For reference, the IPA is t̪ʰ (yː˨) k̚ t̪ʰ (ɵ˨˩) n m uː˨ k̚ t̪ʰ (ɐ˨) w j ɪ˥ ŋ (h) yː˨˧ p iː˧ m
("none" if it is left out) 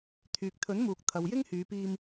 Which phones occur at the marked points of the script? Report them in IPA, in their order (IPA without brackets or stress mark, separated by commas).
yː˨, ɵ˨˥, ɐ˨, h